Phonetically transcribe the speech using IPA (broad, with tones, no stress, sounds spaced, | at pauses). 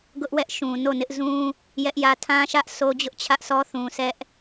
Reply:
ɡ ʊ˦ ʔ w ɛ˦ ʔ ʃ ũ˨ n o˦˨ n ɪ˦ ʔ z ũ˦ | j ɛ˦ ʔ j ä˦ tʰ ã˦ ʃ ä˦ ʔ s o˦ d͡ʑ ʊ˦ ʔ t͡ɕʰ ä˦ ʔ s ɔ˦ θ ũ˨ s ɛ˦ ʔ